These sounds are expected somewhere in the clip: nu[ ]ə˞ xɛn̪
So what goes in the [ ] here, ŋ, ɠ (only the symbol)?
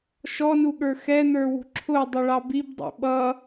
ɠ